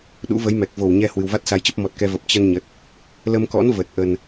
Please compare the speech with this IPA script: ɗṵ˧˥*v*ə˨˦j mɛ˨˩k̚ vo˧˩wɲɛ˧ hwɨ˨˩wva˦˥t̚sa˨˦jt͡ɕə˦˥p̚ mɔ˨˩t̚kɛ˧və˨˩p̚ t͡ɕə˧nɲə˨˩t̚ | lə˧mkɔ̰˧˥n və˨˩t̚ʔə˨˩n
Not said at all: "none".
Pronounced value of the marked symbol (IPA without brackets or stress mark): v